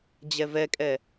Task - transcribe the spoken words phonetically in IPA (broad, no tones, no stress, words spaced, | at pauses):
d͡ʑɛvɛkʼɛ